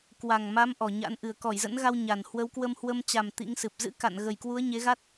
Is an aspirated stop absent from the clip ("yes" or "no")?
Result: yes